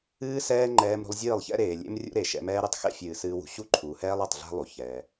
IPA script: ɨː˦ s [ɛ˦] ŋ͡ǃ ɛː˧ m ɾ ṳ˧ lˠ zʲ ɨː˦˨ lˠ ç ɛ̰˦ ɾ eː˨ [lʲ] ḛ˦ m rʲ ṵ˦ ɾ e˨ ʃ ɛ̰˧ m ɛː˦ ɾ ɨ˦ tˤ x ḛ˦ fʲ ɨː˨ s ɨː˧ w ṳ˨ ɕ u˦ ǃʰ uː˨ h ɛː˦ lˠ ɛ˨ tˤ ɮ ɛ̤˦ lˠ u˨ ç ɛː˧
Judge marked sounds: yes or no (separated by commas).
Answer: no, yes